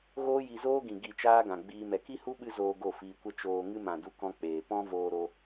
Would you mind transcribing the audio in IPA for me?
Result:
ɣ oː˦ j i˧ z oː˦ ɡ ĩ˨ ɡ i˦˨ t͡ʃ aː˦ ɡ ã˨ ɡ͡b iː˧ m ɛ˨ k i˦ h u˦ ɓ ɨ˦ z oː˧ ɡ o˦˨ f iː˧ kʷ ə˦ t͡ʃ oː˧ ŋ ɨ˦ m ã˨ d u˦ k ɔ̃˦ k͡p eː˨ p ɔ̃˦ v oː˧ ɾ o˧

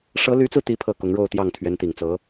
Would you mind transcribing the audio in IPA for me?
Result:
ʂ ɤ˧˥ l y˧˥ t͡s ɹ̩˧ t̪ i˥ pʰ ɤ˥˩ k ʊ˧˥ ŋ ɻ o˥˧ ʊ̯ t̪ j ɑ˥˩ ŋ t̪ʰ ɥ ɛ˧˥ n t̪ i˨˩ ŋ t͡s ɤ˧˥

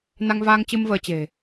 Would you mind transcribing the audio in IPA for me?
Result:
n a˧ ŋ v aː˧ ŋ t͡ɕ ɨ˧ m v əː˧ t͡ɕ e̤˨˩

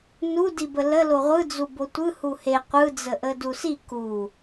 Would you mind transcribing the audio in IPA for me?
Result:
n u d i b ə l ə l o ʁʷ ɯ d͡z u b o tʷ ɯ h u h e qʷ ɯ d͡z ə ʔ ə d u s i k u

